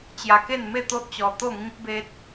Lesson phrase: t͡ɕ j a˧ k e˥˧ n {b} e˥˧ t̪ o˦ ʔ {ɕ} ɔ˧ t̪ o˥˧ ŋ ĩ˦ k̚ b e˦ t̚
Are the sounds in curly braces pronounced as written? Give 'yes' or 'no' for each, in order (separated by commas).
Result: no, no